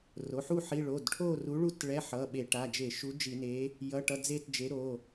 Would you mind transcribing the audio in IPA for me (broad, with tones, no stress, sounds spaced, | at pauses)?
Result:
r o˩˧˩ ħ u˥˧ ħ i˧˥˧ ɭ o˩˧˩ d ʈʰ o˥˧ r u˨˥ ɭ u˥˧ t ɭ ɛ˧˥˧ ħ ʌ˩˧˩ ɓ e˧˩˧ ʈ a˩˧˩ d͡ʒ e˧˩˧ ʃ u˨˥ d͡ʒ i˧˩˧ n e˨˥ | j ʌ˧˥˧ ʈ ʌ˧˥˧ d͡z e˥˧ t d͡ʒ e˨˥ ɾ o˩˧˩